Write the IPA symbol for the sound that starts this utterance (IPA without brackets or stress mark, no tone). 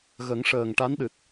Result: ɣ